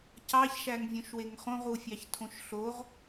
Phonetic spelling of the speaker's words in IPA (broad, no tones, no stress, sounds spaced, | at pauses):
c ɑ ç ʃ æ ŋ vʲ õ ʃ w e ŋ χ õ ʁ u fʲ ɑ ç tʰ õ ʃ ɬ o ʁ